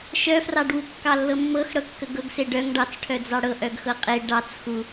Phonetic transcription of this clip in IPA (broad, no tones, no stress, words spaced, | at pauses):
ʃœfrɑɖwu kːɑlːɤmːɤx ɽɤkːəɡɤɡse ɖœŋ ɖɑt͡sʈʰœd͡zɑ ɽɤʔœɡ xɤqʼe ɖɑt͡s xu